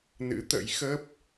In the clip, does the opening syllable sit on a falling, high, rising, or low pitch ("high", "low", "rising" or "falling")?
rising